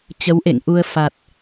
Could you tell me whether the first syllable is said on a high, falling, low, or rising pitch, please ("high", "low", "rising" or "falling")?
rising